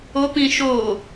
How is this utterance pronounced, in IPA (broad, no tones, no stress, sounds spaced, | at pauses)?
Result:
o p ĩ ʃ o